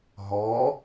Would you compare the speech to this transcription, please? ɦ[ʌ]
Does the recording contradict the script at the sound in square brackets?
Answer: yes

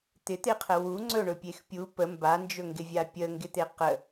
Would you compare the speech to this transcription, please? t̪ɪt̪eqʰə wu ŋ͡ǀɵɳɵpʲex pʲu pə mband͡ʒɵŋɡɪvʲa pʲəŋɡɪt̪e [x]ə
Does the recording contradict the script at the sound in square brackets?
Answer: yes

